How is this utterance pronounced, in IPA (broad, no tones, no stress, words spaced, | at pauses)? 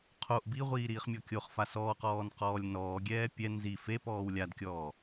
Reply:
qʰoʔ biʁʷiː ɾiːχmʲɔkʲoχfa sɔːqɔːn qɔːlʲnɔːɡʲɛː pʲɛ nzi fepɔːw lʲadkʲɔː